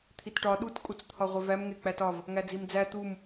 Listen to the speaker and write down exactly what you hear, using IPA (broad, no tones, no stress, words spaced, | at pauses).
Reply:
t̪ʰitʈɒ ɗut kʼut͡st̪ʰɒʁʷevæm ŋek͡pætɒv | ŋæd͡zimd͡zæ t̪um